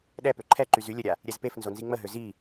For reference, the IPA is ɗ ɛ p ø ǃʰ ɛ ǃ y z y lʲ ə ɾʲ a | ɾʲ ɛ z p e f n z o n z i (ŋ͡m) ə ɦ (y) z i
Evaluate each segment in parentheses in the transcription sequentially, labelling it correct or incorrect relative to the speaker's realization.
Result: correct, incorrect: ø

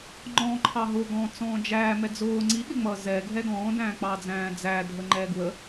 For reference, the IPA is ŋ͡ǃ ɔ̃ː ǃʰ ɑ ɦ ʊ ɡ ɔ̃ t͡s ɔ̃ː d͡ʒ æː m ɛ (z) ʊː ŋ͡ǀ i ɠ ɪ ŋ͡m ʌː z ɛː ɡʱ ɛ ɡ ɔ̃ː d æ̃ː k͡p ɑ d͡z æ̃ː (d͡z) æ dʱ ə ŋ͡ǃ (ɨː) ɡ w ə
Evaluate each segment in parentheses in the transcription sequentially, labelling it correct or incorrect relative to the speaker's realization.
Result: incorrect: d͡z, correct, incorrect: ɛː

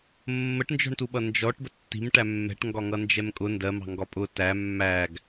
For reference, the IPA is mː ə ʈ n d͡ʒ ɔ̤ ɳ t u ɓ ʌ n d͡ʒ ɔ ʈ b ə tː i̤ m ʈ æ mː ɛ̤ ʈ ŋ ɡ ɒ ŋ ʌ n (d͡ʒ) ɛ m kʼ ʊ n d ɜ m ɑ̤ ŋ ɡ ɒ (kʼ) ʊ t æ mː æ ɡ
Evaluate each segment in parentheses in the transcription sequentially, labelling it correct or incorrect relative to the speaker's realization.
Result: correct, incorrect: pʼ

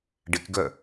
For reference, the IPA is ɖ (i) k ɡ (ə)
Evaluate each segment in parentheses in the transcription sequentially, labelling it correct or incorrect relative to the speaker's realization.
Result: correct, incorrect: œ

